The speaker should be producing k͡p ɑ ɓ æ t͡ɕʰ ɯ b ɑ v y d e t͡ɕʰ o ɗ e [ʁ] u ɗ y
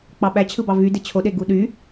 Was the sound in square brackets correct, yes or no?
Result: no